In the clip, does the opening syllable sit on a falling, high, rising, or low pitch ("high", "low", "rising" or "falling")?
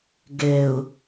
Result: low